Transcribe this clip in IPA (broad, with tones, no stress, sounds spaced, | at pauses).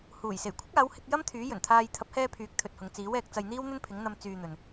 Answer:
h uː˨˩ j s e˨˩ j kʷʰ ɪ˥ k̚ aː˨˥ w h ɪ˧ k̚ j ɐ˥ m t̪ʰ yː˨˥ j ɵ˨˩ n t̪ʰ aː˧ j t̪ʰ ɐ˨˥ p̚ h ɛː˧ pʰ yː˨˥ k̚ t̪ʰ ɵ˨ t̚ h ʊ˨˧ ŋ t͡s iː˨˥ w ɛː˨˥ k̚ t͡s ɐ˧ j n̪ iː˥ w n̪ ɵ˥ n pʰ ɪ˨˥ ŋ n̪ ɐ˨ m t͡s yː˧ n̪ ɵ˨ n